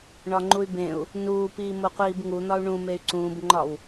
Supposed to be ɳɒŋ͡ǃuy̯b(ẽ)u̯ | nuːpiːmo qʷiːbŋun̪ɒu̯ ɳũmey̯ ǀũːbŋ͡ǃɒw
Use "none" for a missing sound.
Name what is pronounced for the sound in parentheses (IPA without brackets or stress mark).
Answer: ẽ